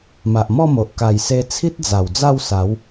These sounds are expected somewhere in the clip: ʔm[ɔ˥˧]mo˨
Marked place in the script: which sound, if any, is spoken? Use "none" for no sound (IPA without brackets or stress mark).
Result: ɔ˥˧